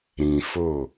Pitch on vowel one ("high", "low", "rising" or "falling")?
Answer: low